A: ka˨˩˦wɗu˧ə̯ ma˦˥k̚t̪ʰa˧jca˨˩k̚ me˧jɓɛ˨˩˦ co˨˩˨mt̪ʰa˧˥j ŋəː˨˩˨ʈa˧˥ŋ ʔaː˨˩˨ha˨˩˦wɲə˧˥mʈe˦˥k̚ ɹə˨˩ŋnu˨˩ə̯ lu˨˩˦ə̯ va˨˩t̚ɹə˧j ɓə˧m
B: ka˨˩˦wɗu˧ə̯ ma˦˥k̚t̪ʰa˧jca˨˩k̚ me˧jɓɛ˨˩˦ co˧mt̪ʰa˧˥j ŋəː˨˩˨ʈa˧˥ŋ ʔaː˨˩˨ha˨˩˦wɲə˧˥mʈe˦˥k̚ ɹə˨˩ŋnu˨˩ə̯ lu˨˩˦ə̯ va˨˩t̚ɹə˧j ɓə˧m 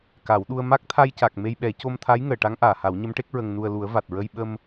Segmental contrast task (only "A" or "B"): B